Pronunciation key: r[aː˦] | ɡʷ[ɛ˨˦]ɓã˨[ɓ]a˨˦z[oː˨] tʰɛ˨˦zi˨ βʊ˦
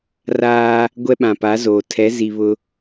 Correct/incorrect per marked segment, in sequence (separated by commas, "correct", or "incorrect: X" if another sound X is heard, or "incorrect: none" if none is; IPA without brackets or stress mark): correct, incorrect: ɛ˦, incorrect: p, correct